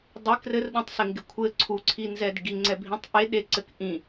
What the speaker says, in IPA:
dˤ ɪ k r ɘ r ɗ ũ tˤ s ɪ ŋ ɡ ɪ kʷʰ ɘ ǀʰ u ǀʰ i n z ɛ d ɡ i ŋ͡ǀ ɛ bʱ ĩ tˤ ʔ e ɗ e ǀ ɘ k ʔ ĩ

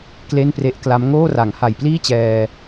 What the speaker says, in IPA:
k l e˥˩ n p r e˦˥ ʔ k l a˦˥ m ŋ oː˥˩ r a˩˦ ŋ h a˨˩ j p l iː˥˩ t͡ɕ ɛː˧

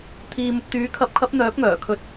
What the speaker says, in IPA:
t̪ʰ iː˨ m ʊ˨ k̚ t̪ yː˨˥ kʰ ɐ˨˥ p̚ kʰ ɐ˨˥ p̚ n̪ œː˨˥ p̚ ŋ œː˨˩ kʰ ɵ˨˥ t̚

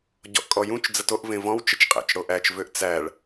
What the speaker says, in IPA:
ɟ ɔ̰ ʔ kʼ ɔ j ũ t͡ʃ d͡z ə t o ʔ v ẽ v ɔ̃ w t͡ʃ ə t͡ʃ qʼ æ̰ t͡ʃ ɽ o ʔ æ t͡ʃ v ø ʔ t͡s æ ɭ

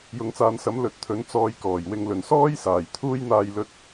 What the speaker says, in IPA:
j ʊ˨˧ ŋ t͡s aː˨˧ n s ɐ˨˥ m l ɵ˨˥ t̚ t̪ʰ ɵ˨˥ n t͡s ɔː˧ j k ɔː˨˩ j w ɪ˧ ŋ l ɵ˨˩ n s ɔː˥ j s aː˨˩ j t̪ʰ uː˥ j n̪ aː˧ j l ɵ˧ t̚

